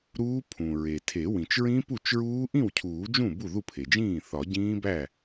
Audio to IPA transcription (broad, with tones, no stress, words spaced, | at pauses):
ɾuː˦˥ pʰũ˩ɹe˩tʰe˨˩˦ wĩ˩t͡ʃɹĩ˦˥pu˥˩t͡ʃɹuː˦˥ ʔĩ˥˩wcʰuː˨˩˦d͡ʒũ˥˩ bu˥˩ðu˥˩pʰe˩d͡ʒĩː˥˩ θɒ˨˩˦ɟĩː˦˥bæ˥˩